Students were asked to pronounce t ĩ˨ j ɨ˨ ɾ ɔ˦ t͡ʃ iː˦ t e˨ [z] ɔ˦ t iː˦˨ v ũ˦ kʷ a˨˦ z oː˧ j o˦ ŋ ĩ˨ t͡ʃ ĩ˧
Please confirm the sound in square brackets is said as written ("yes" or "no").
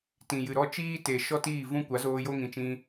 no